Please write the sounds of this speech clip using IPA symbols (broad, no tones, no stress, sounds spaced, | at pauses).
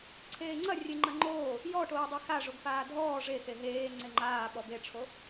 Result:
ǀʰ eː ŋ͡ǀ ɐ rʲ e ŋ͡ǃ ɐ ŋ͡ǃ oː | j ɔ ʈ oː dˤ e x a ʐ o ɡ f aː dʱ ɔː ʐ e x e ɦ eː ŋ͡ǀ e ŋ͡ǃ aː ɓ ɔ b e ʈ͡ʂʰ o